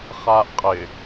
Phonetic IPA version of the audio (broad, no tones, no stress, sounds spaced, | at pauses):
χ aː ʔ qʼ ɪ